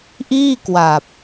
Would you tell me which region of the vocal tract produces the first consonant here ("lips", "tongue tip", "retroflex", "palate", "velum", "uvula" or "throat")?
throat